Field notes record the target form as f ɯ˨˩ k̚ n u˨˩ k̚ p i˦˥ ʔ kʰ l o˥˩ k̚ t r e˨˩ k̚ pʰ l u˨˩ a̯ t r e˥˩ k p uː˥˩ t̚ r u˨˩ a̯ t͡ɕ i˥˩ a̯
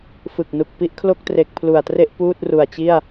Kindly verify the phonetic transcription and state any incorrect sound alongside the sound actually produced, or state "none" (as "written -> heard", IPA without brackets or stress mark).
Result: k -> ʔ